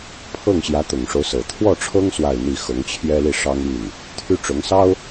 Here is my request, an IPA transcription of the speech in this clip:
pʰ ɤ˥˩ ŋ ɕ j ä˧˥ t̪ ʊ˨˩ ŋ ʂ o˦ ʊ̯ s ɤ˨˩ t̪ʰ w ɔ˥˩ ʈ͡ʂʰ ɤ˥ ŋ s w a˥˧ ɪ̯ n̪ i˥˩ x ɤ˧˥ ŋ t͡ɕʰ j ɛ˥ l i˥˩ ʂ ɑ˥ ŋ y˥˩ n | t̪ʰ y˥ ʈ͡ʂ ʊ˧˥ ŋ s ɑ˥ ʊ̯

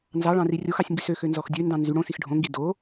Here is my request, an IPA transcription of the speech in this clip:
n z ɑ ɭ ɑ̃ r i rʲ o x ɑ sʲ ŋ ɡ y s ø x ø n z ɔ x dʲ ø n d ɑ̃ n z y ɽ õ s i x ɖʱ õ ŋ ɡ i d o

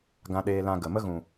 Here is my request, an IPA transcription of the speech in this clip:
ɡ ã˧ ɗ eː˧ l ã˧ ɡ ə˨ m ə˦ ɣ ũ˨

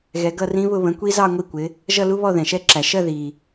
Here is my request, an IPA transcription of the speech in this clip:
ɣ ɛ˨˦ ɡ ʌ˥˧ r ĩ˦˥ β ʊ˥˧ β ə̃˨˦ kʷ i˦˥ z ɑ˥˧ ŋʷ i˥˧ kʷ ɪ˨˦ | ʒ ʌ˥˧ l u˦˥ β ɔ˥˧ ð ɛ̃˨˩ ʃ ɛ˦˥ ǁ æ˨˩ ʃ ɜ˥˧ ð i˨˩

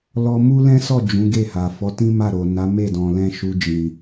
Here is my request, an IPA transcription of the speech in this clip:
l ɔ˧ m u˦ l ɛ̃˦ s ɔ˦˨ d͡ʒ ũ˨˦ ɡ e˦˨ h a˨ f ɔ˨˦ t ĩ˦ m a˦˨ ɾ o˨ n a˨˦ m e˦˨ d ɔ̃˨ l ɛ̃˧ ʃ u˨ d͡ʒ ĩ˨

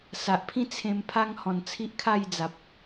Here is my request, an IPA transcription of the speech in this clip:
s a˨ ʔ pʰ ĩ˥˧ t͡sʰ ẽ˧ m pʰ a˦ ŋ h ɔ̃˨˩ n t͡sʰ i˦ ʔ kʰ a˥˧ j d͡z a˨ p̚

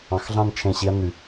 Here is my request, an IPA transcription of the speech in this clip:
ɑ̃˨˦ x ɮ ɑ̃˥˧ n t͡ʃʰ ẽ˧˩ ɕ i˨˦ ɐ̯ n y˩

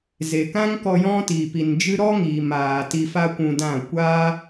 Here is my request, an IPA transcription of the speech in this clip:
z e˨ k ã˦ ŋ k ɔ˧ j ɔ̃˦ t i˨ p i˨ n d͡ʒ ɨ˦ ɾ ɔ˦ ŋ iː˨ m aː˨ t i˧ f a˦ kʷ ũ˧ d ã˦˨ kʷ aː˦

